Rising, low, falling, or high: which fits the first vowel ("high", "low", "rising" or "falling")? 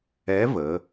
rising